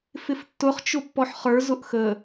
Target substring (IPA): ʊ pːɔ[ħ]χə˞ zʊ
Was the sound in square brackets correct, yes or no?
yes